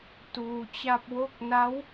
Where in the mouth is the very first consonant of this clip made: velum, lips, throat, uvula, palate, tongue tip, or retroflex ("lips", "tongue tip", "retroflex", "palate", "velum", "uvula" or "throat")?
tongue tip